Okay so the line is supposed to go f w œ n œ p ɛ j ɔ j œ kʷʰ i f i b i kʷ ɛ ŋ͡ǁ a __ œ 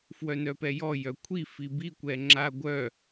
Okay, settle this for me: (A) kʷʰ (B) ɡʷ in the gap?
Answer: B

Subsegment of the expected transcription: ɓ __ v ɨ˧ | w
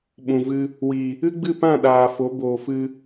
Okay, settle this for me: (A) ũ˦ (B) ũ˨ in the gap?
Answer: B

